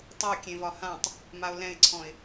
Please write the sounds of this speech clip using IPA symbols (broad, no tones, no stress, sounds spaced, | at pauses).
tˤ o kʲ ẽ v ɒ h ã tˤ | m a ʊ̯ l ɛ̃ ɪ̯ ǀʰ ɔ̃ ɪ̯